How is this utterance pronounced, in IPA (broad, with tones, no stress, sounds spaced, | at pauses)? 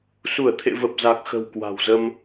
s u˧˩ ə̯ t̪ʰ ḛ˧˨ v ə˨˩ p̚ z a˨˩ k̚ x ə̤˨˩ w k w a̤˨˩ w z ə˧ m